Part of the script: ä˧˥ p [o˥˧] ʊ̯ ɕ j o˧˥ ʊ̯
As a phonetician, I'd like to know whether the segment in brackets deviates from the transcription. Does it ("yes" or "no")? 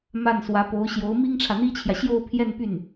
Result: yes